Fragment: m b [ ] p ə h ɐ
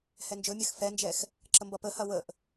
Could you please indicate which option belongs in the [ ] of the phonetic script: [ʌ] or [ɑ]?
ʌ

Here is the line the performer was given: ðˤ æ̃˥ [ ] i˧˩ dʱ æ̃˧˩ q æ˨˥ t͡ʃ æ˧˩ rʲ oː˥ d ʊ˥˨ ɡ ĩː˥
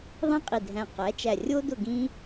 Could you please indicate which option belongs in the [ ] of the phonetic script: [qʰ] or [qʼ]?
qʼ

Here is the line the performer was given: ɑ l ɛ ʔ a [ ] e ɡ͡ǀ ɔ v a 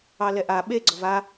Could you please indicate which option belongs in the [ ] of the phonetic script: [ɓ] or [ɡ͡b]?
ɓ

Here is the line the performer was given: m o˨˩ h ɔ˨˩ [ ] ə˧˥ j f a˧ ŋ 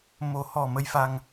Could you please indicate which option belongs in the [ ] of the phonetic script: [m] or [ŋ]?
m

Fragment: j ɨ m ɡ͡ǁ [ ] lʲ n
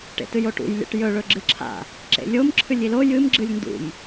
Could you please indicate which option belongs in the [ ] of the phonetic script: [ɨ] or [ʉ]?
ɨ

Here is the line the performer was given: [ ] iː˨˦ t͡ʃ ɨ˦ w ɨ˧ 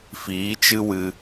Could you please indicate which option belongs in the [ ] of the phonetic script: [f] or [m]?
f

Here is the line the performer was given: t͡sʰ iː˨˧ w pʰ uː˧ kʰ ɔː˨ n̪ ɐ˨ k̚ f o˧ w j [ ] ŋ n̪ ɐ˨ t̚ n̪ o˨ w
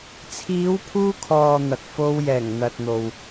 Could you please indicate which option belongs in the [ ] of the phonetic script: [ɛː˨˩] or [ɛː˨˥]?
ɛː˨˩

